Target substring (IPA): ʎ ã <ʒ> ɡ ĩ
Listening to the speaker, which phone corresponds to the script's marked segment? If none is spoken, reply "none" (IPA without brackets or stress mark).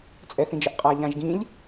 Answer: ʒ